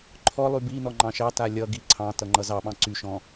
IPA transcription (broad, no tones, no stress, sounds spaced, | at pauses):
ǃʰ ɔ lˠ y b i n ɔ ŋ͡ǃ ɑ̃ ʃ ɑ t a lʲ ʌ ɡ i ǀʰ ɑ̃ t ʌ ŋ͡ǃ ʌ z ɑ ɓ ɑ̃ ǀ y ʃ ɔ̃